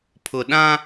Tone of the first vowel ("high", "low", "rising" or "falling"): low